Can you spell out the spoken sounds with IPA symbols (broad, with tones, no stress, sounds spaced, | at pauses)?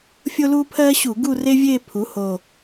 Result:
fʲ o˥ l uː˥ pʰ ɜː˥ ɕ u˧˩˧ ɡ u˥˧ r e˥ vʲ eː˥˧ pʰ u˩˥ h o˨˩